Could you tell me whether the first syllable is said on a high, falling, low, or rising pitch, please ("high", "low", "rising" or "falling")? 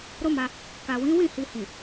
high